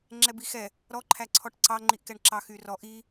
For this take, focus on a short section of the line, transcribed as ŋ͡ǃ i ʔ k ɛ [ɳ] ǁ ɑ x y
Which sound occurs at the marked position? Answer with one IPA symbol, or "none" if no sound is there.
ɳ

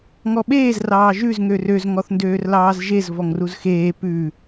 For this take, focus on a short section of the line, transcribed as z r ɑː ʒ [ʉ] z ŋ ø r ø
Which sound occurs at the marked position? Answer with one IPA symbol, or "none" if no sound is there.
ʉ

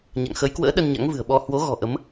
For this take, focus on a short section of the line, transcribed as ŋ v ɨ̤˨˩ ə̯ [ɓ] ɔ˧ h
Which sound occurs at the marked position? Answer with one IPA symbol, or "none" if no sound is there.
ɓ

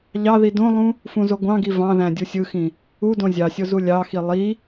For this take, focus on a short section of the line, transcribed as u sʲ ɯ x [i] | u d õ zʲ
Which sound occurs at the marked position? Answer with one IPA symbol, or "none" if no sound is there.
ĩ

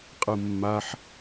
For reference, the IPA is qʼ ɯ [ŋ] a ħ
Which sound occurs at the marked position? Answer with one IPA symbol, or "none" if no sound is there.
mː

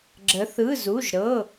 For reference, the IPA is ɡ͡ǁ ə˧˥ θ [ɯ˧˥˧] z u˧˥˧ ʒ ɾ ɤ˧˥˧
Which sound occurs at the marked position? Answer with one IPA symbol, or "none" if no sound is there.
ɯ˧˥˧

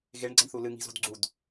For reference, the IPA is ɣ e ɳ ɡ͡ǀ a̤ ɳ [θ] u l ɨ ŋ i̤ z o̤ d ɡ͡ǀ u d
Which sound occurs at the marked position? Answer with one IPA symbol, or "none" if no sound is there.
θ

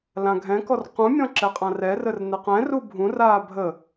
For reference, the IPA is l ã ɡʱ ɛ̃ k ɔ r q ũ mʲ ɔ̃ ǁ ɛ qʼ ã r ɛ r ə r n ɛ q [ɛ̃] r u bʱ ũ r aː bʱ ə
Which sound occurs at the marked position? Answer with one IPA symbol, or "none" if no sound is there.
ɛ̃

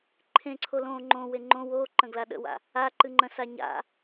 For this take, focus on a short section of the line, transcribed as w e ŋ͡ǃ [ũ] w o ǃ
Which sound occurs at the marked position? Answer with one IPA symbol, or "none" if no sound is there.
õ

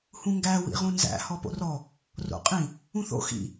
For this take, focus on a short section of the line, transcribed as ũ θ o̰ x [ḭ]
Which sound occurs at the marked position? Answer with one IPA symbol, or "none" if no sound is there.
ḭ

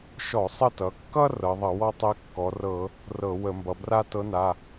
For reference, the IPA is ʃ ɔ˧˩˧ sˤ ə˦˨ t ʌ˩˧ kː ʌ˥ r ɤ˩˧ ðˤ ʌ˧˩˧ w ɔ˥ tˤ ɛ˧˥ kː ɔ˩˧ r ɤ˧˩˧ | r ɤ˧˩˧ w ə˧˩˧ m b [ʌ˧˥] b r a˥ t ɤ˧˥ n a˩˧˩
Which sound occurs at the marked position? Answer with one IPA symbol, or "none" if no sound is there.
ʌ˩˧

